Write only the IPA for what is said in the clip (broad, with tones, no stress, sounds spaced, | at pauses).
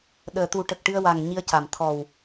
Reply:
ɗ əː˨˩ t̪ u˨˩˦ ʈ ə˨˩ k̚ ʈ ɨ˧ ə̯ w a˨˩ ŋ ɲ i˧ ə̯ c a˨˩ m t̪ʰ ɔ˨˩ w